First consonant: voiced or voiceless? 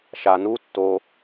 voiceless